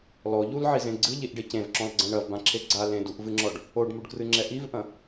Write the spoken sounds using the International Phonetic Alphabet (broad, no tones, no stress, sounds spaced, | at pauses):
l ɔ ʎ u l ʕ i z ẽ ɡ͡ǀ ɨ ʎ i ʔ ɖ e c ẽ v ǁ ɔ̃ l ɡ͡ǀ ɐ̃ ɳ ɐ v b ã ǁʰ e ɡ͡ǀ a l ẽ d u ʔ v ɨ ŋ͡ǁ ɔ ɖ | o ɖ m u ɖ k r ɨ ŋ͡ǁ ɛ ʔ i v ʔ ɐ̃